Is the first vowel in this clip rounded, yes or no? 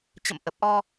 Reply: no